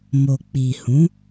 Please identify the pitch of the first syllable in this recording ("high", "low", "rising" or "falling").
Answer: low